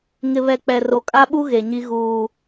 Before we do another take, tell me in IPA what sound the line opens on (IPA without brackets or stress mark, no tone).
ŋ